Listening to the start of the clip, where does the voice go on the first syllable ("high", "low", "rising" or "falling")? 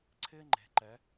high